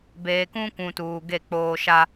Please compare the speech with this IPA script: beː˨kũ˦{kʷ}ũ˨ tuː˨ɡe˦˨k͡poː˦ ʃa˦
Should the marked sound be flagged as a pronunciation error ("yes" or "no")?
no